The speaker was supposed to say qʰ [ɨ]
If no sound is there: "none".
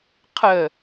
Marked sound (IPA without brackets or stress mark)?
ə